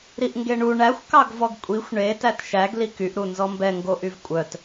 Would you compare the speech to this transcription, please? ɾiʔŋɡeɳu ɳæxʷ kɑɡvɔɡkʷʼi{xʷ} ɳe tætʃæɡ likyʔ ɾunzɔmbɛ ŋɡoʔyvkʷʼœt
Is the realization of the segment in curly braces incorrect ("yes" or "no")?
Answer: no